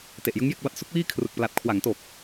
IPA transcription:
t e˨˩ ʔ j ɯ˦˥ ŋ j e˥˩ k̚ b a˦˥ t̚ s u˦˥ k̚ w iː˥˩ kʰ r ɯ˨˩ k̚ p l a˨˩ t̚ kʰ w a˩˦ ŋ t o˨˩ k̚

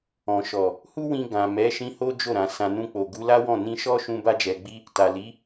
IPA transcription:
ɔ̃˨ ʃ ɔ˨ | h u˦ w ĩ˧ ɡ ã˨ m ɛ˨˦ ʃ ĩ˧ h o˦ d͡ʒ o˦˨ ɾ ã˨ s ã˧ n ũ˧ k͡p o˨ ɡ u˨˦ l a˦ w ɔ̃˦˨ n ĩ˧ ʃ ɔ˦ ʃ ũ˧ b a˧ d͡ʒ ɛ˨ ɡ͡b i˧ | t a˨ l i˨˦

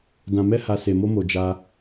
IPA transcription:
d ã˨ m ɛ˧ h a˨ s e˨ m o˧ m o˨ d͡ʒ a˧

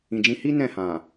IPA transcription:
ĩ˨ d͡ʒ ĩ˧ h i˦ n ɛ̃˦˨ h ã˨

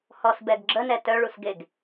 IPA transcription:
h ɔ s b ɛ ɡ ɡ͡ǁ ə n ɛ t œ ɭ u s ɡ e ɡ

